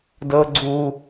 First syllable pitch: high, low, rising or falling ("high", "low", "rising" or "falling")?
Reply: high